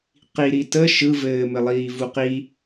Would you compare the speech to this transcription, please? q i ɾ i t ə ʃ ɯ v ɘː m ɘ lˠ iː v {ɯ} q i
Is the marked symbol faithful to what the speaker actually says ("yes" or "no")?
no